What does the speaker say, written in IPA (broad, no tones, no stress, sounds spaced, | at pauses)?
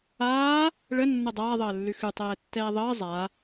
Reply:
aː | ɭ ə nː ə dˤ aː ðˤ əː lː ʉ x ʉ tˤ ɛː tː ɛː ðˤ əː zˤ a